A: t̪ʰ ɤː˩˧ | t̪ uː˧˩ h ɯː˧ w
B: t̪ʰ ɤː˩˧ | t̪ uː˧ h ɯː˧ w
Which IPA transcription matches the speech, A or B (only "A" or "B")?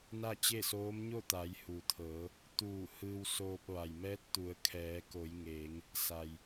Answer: A